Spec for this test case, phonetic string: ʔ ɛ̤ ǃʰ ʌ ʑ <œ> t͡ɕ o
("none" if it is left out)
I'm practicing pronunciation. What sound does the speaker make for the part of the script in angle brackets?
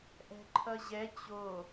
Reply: ɛ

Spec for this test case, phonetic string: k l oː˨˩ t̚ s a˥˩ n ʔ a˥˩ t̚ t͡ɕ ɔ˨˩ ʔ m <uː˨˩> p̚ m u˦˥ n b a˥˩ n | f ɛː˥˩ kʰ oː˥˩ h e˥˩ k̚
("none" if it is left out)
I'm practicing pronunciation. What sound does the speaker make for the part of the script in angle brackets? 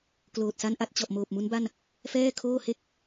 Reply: oː˨˩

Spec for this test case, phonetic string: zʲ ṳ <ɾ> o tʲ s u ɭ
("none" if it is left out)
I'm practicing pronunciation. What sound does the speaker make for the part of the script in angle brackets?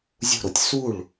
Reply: ɾ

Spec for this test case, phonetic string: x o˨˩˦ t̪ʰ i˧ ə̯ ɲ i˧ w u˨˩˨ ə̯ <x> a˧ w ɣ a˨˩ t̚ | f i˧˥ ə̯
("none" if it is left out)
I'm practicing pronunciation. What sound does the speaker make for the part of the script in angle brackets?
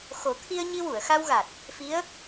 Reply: x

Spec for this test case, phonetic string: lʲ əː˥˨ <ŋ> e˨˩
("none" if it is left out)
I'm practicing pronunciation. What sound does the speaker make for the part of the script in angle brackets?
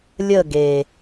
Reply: ɡ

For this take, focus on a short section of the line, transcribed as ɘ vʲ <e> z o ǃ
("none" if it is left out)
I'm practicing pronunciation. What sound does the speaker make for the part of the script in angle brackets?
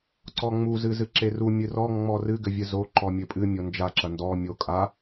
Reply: ɨ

